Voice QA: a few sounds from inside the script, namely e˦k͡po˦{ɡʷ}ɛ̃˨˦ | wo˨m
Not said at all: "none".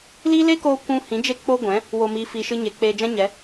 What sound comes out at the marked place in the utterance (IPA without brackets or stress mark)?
ɡʷ